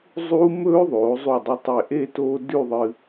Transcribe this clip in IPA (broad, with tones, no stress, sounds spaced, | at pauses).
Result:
zˤ uː˧ m ɵː˧ ðˤ oː˩˧ zˤ u˧˩ dˤ u˧ tˤ e˧˩ ʔ e˥˧ t oː˥ d ʉ˥˧ ðˤ ɨ˧